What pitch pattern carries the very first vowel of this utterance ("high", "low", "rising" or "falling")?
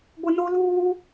high